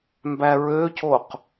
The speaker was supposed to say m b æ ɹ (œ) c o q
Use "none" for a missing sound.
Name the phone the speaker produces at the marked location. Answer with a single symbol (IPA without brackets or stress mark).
ø